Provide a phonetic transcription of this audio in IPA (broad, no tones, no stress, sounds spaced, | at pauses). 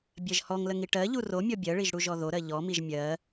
bʲ ɜ ʒ h ɔ ŋ l ə ŋ i ʈ ɜ ʎ u r o mʲ ɔ bʲ ɜ ɭ i ʒ ɽ u ʒ ɔ ð o ɾ ɜ ʎ ɔ m i ʒ mʲ ɜ